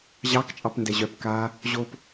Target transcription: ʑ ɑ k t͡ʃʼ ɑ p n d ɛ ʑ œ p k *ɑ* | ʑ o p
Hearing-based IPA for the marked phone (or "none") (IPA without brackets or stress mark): a